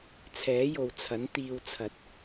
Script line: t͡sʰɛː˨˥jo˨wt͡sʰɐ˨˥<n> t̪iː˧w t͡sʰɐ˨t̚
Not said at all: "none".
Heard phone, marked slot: n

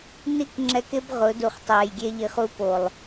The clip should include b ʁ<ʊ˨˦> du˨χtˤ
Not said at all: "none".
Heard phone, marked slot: ʊ˨˦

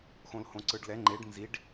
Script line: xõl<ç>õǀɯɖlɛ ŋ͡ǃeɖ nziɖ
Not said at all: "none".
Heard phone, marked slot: h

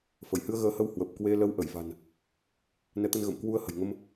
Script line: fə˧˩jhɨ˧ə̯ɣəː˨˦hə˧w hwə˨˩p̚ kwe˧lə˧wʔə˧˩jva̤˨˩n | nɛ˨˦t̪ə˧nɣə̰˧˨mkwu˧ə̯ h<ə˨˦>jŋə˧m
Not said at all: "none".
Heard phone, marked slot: ə̤˨˩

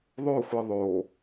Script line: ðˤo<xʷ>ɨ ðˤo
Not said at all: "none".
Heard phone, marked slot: xʷ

